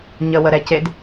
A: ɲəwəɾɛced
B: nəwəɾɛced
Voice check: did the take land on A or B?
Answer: A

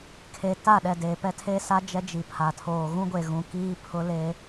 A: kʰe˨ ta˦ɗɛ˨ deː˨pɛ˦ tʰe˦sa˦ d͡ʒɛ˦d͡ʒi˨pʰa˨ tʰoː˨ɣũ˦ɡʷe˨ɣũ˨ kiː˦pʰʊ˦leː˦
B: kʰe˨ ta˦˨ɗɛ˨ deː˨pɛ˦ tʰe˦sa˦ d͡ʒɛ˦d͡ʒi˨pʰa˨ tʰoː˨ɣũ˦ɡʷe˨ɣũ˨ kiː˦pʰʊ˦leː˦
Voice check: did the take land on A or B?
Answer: B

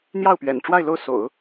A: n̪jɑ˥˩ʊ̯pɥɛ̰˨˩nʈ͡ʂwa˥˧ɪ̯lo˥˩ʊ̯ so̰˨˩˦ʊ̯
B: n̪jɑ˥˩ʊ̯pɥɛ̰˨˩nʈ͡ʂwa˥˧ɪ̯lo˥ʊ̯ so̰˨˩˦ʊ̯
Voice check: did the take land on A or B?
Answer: A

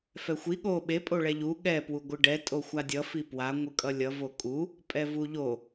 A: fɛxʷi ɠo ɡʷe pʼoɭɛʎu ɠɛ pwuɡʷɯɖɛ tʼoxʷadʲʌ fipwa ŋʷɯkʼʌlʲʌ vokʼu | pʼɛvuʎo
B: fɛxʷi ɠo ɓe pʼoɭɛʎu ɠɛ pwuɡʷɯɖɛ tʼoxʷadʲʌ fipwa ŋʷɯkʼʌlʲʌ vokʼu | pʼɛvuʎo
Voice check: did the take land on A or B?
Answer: B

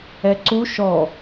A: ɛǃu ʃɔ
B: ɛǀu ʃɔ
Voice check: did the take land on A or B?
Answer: B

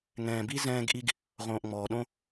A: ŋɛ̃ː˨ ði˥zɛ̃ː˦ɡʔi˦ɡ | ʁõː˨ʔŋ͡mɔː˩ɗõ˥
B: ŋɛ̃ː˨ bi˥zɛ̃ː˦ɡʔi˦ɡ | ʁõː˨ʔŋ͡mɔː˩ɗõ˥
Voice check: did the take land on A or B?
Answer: B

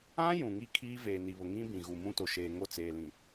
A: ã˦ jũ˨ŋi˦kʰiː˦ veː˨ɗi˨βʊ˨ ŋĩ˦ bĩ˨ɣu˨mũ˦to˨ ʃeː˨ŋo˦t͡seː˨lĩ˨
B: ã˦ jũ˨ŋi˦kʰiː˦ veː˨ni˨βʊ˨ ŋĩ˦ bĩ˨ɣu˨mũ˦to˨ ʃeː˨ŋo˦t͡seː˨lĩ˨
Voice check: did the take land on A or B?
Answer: B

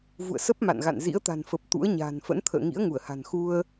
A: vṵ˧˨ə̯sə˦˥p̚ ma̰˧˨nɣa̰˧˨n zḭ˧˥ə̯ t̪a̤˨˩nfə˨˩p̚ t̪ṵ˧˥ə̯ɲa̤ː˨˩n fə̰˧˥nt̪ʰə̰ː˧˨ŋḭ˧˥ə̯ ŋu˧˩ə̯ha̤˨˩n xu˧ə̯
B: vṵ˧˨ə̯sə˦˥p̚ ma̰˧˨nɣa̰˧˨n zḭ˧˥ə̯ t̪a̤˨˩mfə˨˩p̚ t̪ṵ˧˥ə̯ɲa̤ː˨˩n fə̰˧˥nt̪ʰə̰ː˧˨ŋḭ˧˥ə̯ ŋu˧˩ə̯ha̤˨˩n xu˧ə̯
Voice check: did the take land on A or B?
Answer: A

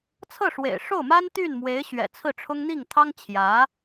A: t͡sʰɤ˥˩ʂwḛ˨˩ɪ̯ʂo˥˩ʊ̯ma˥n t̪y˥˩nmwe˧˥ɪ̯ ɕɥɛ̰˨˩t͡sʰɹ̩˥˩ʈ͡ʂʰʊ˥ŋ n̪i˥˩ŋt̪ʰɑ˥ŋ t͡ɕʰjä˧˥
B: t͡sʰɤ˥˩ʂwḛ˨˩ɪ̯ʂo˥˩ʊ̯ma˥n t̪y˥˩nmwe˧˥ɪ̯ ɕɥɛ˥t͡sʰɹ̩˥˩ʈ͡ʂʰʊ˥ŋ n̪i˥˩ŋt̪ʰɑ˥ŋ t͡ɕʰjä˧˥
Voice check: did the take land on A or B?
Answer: A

